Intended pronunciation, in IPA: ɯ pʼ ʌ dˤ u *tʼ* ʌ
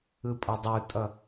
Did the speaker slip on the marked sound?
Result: no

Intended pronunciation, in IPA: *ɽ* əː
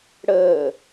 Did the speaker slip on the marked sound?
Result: no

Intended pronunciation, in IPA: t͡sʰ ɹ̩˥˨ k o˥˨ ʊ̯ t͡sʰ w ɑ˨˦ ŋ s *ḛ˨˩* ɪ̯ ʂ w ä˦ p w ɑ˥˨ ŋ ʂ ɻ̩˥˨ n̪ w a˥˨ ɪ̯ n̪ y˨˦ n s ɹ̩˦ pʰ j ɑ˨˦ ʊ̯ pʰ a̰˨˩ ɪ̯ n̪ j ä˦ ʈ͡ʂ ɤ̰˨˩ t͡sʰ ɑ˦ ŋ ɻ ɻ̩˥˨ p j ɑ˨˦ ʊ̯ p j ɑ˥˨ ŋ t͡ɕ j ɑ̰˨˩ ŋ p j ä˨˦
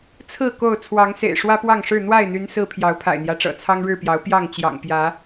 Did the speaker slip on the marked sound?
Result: no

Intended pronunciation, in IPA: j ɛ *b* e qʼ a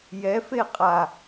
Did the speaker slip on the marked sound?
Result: yes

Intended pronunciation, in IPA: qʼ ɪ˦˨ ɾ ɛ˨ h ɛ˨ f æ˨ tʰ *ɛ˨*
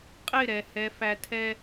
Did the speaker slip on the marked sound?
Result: yes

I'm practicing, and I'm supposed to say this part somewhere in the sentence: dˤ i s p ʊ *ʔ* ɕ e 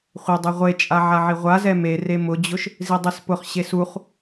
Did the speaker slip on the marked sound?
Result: yes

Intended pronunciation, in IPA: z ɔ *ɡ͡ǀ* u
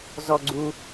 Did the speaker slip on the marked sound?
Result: no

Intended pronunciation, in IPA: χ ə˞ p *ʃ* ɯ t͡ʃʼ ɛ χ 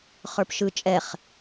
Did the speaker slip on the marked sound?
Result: no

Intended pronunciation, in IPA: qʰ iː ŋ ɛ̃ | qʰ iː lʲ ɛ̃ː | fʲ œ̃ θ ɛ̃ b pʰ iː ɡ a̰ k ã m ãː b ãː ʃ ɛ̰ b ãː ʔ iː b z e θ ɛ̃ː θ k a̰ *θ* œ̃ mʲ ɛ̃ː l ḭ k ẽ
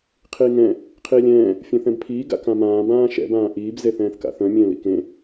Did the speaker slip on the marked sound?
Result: no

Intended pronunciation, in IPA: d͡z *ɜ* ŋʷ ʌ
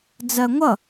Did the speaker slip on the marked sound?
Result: no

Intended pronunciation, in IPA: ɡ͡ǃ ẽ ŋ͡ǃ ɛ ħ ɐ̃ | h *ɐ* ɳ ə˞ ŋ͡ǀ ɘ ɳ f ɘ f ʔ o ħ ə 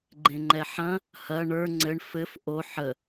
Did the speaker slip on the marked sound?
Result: no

